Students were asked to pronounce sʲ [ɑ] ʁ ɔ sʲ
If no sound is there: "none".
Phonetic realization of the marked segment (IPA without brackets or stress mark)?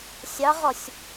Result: ɑ